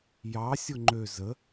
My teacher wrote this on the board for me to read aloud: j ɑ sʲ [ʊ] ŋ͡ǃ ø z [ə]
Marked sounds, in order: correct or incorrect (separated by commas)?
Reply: correct, correct